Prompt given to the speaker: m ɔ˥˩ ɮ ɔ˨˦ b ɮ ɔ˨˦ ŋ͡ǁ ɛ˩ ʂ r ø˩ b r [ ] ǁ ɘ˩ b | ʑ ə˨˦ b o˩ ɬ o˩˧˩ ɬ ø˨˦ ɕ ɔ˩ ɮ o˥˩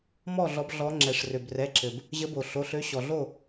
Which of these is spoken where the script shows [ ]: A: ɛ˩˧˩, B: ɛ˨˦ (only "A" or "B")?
A